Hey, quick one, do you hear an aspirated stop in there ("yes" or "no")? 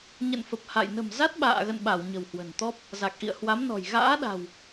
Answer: no